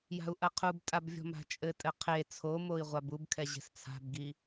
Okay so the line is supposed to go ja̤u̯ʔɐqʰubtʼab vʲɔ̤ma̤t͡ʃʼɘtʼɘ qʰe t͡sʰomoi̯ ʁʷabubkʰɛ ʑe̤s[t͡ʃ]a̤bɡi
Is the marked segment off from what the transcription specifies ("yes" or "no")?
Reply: yes